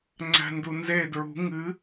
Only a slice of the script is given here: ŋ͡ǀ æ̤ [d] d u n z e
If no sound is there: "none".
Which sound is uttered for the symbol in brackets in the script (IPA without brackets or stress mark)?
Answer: n